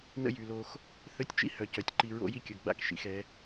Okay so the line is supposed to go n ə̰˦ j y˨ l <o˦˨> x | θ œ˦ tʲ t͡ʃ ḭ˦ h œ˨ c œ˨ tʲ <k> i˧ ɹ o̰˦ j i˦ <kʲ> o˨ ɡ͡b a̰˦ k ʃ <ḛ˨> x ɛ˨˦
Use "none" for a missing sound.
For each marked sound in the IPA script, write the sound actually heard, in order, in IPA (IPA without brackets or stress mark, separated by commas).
o˧, ǃ, kʲ, ḭ˨